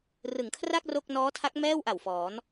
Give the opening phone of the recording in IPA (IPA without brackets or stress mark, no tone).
r